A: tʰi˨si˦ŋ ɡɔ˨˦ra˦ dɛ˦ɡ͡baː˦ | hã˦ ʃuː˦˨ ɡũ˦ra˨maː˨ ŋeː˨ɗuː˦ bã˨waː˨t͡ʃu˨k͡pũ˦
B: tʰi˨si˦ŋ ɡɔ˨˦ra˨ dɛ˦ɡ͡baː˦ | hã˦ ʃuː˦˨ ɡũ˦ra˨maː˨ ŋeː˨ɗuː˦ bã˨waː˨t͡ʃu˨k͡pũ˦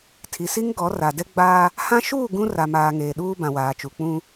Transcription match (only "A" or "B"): B